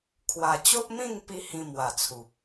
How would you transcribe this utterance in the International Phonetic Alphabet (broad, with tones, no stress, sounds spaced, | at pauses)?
kʰ w a˨˩ t͡ɕ o˦ ʔ m ĩ˥˧ ŋ p i˦ h ĩ˧ m w a˨˩ t͡sʰ u˨ p̚